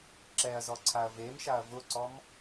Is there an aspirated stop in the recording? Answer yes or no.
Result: yes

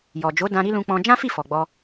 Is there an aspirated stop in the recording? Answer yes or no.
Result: no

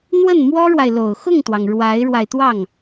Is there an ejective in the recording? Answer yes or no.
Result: no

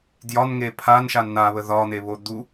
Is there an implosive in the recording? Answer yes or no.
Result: no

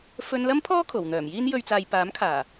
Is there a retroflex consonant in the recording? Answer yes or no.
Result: no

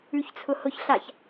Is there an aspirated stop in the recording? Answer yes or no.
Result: yes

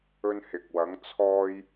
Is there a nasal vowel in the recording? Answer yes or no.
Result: no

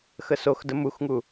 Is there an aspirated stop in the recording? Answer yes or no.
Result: no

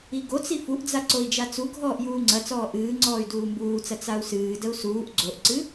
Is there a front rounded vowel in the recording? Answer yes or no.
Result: yes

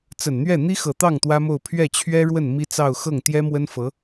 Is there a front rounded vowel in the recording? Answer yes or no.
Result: no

